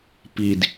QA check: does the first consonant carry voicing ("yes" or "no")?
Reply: no